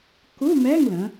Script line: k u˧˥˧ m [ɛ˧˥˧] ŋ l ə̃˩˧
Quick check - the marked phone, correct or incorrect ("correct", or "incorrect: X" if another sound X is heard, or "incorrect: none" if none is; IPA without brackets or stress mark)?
correct